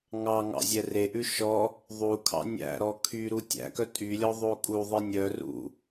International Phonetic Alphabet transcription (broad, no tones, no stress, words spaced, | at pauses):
ŋɑŋɑ̰ zʲɛreʔʉ ʃɔ | ðˤukʰɑ̰ nʲæ̰ɾɔ kʰy ɾutʲæ̰kœ tʼylʲɔ ðˤokʼuðˤe nʲœ rṵ